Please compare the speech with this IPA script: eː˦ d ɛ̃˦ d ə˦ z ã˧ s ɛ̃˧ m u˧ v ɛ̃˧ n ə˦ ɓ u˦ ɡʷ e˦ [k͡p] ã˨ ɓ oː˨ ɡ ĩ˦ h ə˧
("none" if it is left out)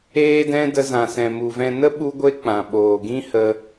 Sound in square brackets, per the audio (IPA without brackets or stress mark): k͡p